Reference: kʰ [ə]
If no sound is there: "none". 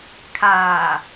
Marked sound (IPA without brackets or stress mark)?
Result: a